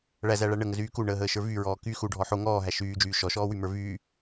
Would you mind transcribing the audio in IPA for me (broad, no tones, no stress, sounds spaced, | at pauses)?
ɭ æ z æ ɭ æ ɳ ə ŋ ə z yː k u ɳ əː ɦ əː ʃ ə˞ v y ɹ ɔː k y x u ɖʱ ɔ ħ o ŋ ɔː ɦ æ ʃ yː d͡ʒ yː ʃ ɔ ʃ ɔː w y m ə˞ v yː